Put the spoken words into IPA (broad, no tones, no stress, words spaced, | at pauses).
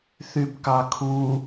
θybkɑkʰu